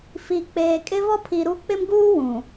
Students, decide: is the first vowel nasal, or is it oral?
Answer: oral